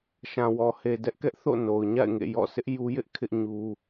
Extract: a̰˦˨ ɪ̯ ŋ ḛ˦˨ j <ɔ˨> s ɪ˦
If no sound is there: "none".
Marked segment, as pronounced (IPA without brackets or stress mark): ɔ̰˦˨